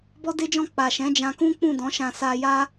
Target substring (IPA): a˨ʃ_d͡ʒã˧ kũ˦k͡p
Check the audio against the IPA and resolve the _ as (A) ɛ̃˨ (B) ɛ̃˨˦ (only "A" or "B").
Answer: B